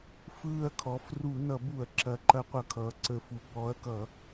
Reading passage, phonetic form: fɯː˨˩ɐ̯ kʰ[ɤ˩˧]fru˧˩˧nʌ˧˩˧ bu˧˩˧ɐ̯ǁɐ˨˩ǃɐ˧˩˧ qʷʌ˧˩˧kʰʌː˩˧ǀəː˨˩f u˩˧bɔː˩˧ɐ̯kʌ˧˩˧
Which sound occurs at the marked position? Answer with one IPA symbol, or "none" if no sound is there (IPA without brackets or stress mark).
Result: ɔ˩˧